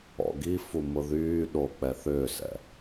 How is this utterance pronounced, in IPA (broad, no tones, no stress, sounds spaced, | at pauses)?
ɔ̰ ɡ i f u m ʊ ð yː ɗ o k͡p ɛ θ ʏː s ɛ̰